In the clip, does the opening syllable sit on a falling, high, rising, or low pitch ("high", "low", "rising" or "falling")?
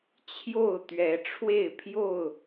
falling